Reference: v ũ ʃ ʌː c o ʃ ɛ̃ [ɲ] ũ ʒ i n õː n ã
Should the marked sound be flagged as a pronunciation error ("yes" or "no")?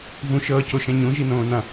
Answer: no